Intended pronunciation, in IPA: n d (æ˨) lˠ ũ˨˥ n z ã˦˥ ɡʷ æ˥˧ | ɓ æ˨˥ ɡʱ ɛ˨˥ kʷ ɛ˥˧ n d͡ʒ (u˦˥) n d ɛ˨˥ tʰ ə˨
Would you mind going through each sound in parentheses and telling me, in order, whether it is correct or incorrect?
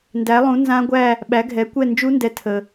incorrect, correct

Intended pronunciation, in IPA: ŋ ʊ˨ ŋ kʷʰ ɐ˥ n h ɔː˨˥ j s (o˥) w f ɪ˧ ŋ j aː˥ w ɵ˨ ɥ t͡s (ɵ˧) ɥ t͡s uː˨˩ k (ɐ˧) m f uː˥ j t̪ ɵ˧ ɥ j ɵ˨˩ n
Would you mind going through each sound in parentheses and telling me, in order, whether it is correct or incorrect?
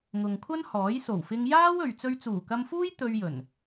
incorrect, correct, correct

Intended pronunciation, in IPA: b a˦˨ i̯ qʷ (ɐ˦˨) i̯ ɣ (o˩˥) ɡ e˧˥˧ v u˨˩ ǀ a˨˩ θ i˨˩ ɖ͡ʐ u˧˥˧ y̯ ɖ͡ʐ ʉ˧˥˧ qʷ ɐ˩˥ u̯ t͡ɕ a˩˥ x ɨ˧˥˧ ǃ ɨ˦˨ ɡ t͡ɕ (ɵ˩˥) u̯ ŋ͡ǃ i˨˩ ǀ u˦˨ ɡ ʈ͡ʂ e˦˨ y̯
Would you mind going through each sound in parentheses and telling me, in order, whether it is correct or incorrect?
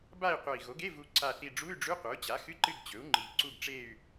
incorrect, correct, correct

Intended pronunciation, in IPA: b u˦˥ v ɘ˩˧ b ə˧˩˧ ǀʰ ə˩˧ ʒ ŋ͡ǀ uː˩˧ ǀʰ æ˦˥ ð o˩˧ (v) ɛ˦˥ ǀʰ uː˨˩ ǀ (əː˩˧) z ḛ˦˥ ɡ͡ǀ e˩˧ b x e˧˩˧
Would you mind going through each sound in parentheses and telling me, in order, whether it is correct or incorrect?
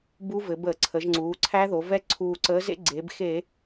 correct, incorrect

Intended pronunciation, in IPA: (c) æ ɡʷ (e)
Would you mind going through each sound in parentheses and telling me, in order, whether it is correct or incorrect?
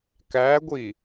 incorrect, incorrect

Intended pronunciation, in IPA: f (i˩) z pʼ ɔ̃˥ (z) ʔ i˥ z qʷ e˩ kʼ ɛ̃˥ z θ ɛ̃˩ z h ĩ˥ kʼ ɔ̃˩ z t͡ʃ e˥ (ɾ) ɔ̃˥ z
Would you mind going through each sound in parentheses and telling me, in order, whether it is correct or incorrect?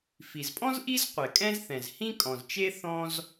correct, correct, incorrect

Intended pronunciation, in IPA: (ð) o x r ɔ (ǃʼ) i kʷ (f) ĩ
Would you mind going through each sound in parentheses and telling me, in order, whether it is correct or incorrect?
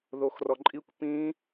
correct, correct, incorrect

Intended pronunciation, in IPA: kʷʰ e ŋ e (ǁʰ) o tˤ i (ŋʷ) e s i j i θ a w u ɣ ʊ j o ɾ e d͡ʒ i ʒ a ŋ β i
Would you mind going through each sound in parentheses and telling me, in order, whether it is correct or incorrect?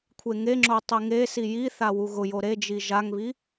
incorrect, incorrect

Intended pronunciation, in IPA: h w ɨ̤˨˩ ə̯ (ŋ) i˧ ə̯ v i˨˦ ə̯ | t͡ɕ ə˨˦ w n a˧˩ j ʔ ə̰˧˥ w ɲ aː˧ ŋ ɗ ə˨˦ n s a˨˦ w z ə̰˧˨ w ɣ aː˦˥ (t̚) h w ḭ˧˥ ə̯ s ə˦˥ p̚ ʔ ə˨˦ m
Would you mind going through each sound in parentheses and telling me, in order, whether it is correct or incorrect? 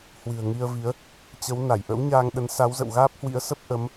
correct, incorrect

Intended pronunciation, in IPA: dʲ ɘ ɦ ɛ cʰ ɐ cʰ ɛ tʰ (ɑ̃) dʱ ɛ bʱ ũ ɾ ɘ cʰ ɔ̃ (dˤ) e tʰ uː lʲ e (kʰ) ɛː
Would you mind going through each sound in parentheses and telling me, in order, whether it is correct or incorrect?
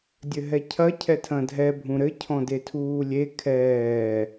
incorrect, incorrect, correct

